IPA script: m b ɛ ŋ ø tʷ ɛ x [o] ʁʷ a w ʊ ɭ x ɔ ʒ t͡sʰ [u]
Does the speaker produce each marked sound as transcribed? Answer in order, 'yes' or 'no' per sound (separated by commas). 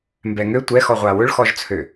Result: no, no